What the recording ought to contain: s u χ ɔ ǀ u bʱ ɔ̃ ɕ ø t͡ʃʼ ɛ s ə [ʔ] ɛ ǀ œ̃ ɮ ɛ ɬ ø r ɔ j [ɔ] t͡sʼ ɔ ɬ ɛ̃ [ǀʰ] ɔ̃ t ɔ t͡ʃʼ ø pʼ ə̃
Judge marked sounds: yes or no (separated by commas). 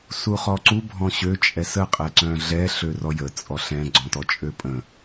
no, no, no